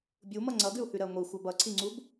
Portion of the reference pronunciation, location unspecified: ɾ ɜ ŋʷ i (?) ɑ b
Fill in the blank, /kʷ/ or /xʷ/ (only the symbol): xʷ